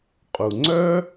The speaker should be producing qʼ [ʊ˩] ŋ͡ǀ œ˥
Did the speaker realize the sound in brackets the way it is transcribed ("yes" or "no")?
no